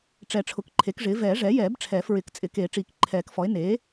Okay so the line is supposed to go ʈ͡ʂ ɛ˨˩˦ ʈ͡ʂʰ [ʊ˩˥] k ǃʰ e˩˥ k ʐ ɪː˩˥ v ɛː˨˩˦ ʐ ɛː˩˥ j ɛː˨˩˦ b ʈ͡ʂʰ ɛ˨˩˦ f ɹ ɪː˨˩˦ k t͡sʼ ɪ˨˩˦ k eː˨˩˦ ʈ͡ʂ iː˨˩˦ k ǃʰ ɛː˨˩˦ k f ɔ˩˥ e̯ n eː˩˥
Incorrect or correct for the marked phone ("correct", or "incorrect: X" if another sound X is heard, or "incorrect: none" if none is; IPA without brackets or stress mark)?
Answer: correct